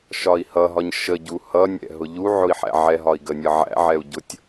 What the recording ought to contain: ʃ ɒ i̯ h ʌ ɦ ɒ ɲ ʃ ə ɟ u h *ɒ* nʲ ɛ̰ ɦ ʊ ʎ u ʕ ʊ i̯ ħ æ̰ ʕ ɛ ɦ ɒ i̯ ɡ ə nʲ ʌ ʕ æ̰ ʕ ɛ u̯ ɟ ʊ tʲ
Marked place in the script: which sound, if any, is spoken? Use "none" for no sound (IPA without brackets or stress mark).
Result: ʌ